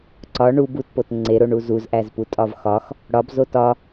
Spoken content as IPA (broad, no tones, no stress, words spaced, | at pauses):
ǀɒ ɳu butpot ŋ͡ǀeɾoɳu zuzʔæzputʼɒv xɒx | ɽɒbzot ɒ